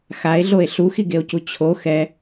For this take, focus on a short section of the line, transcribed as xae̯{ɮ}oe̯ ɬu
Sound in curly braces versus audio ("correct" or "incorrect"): correct